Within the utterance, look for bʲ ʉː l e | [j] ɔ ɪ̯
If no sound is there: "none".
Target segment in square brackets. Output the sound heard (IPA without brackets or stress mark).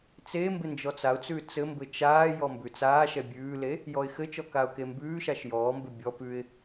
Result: j